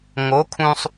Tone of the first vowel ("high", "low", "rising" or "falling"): rising